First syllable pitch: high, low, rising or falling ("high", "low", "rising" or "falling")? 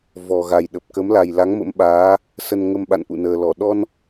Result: low